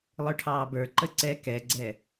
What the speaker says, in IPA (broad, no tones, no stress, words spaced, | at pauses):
lˠə˞ʈʰɑːbə˞ ǃəǀɛ kɛɡ͡ǀɛ